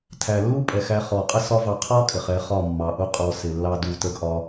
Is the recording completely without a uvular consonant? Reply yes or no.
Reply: no